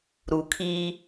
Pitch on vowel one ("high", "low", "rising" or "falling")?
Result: low